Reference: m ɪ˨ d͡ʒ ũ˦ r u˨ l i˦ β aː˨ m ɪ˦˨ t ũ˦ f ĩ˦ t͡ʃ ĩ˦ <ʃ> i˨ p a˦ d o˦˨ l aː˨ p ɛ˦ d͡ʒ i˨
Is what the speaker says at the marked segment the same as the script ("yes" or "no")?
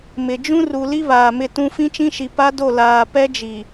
yes